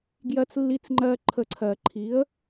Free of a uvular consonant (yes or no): yes